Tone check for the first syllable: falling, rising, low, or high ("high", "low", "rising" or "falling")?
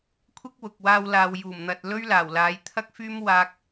high